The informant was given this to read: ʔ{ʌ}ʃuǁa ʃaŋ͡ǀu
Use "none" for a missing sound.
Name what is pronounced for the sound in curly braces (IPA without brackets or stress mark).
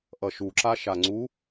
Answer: ʌ